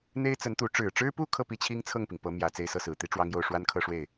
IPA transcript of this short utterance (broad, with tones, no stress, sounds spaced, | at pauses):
n̪ e˥ ɪ̯ t͡s ə˧˥ n t̪ u˧˥ ʈ͡ʂ ɻ̩˨˩ ʈ͡ʂ ɻ̩˥ p u˥ kʰ ɤ˥˩ p i˥ t͡ɕʰ i˥ ŋ t͡sʰ ɤ˥˩ ŋ p i˩ ŋ p ɤ˧˥ m j ä˨˩ t͡s e˥˧ ɪ̯ s ɤ˥˩ s ɹ̩˨˩ t̪ i˥ ʈ͡ʂ w ɑ˥ ŋ j o˥˩ ʊ̯ ʂ w a˥ n kʰ ɤ˥˧ ʂ w e˥˩ ɪ̯